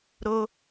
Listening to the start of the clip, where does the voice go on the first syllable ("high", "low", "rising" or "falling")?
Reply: high